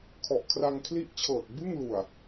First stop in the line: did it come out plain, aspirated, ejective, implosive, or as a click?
aspirated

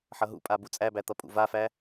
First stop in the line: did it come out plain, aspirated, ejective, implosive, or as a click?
ejective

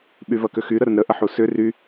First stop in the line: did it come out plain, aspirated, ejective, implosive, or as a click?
implosive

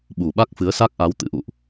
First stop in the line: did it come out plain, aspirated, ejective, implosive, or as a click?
implosive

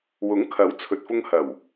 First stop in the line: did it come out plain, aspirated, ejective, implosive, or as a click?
aspirated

